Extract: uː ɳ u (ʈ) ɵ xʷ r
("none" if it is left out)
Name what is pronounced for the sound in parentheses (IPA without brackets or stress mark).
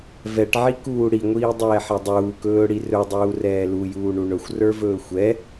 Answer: ɳ